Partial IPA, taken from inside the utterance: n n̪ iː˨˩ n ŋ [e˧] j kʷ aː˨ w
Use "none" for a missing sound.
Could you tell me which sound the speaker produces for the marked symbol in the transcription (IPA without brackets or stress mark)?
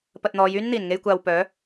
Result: e˧